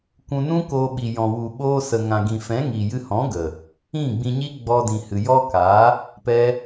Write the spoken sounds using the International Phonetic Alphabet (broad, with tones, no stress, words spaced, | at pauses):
kʷũ˧nũ˦koː˧ ɓi˨jɔ̃˨wu˨ɓoː˧ sə˨ŋã˨ɡĩ˨fɛ̃˨˦ ŋi˨jɨ˧hɔ̃˨˦ɡə˨ | ĩ˦˨ɡ͡bĩ˧ɲi˦ ɡ͡bɔ˧ dĩ˨hɨ˨jɔ˦kaː˨˦ | pɛ˦